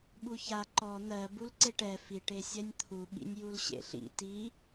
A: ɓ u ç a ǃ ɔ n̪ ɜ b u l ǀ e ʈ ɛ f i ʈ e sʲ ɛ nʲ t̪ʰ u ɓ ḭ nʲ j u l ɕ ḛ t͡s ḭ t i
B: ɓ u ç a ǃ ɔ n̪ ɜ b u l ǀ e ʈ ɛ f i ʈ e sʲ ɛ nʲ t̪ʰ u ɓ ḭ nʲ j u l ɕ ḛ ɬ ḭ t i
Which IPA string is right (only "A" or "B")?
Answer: B